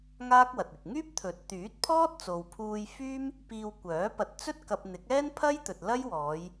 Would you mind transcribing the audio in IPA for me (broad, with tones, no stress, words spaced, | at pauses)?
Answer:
ŋaː˥k̚wɐ˨t̚ɪ˨k̚ ŋyː˥p̚t̪ʰɵ˨˥t̚ t̪yː˨˥t̚pʰɔː˥t̚ t͡so˨wpʰuː˧jfyː˥m | piː˧wkʷœː˨˥ pɐ˨˥t̚t͡sɵ˥t̚ kɐ˧p̚ n̪ɪ˨˥k̚ɛː˥npʰɐ˥jt̪ɵ˨t̚ lɐ˥jwɔː˨˧j